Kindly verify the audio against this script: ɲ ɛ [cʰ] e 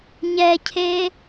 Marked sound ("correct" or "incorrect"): correct